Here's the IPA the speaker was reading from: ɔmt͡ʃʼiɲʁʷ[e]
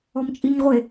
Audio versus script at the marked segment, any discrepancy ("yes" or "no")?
no